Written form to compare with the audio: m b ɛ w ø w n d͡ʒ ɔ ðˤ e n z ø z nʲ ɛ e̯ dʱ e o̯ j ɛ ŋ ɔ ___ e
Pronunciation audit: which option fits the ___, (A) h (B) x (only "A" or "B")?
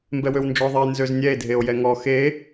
B